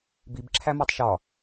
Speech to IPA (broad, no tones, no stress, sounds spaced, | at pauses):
b i b ǁʰ æ m ɒ tˤ ʃ ɒ